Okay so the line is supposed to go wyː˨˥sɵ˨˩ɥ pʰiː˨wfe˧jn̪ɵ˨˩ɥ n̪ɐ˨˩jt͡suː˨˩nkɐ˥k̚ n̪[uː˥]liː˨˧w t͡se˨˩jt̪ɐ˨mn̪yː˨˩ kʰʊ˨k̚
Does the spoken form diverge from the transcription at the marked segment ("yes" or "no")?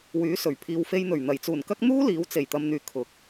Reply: no